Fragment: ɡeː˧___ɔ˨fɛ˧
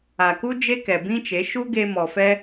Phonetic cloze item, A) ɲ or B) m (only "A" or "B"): B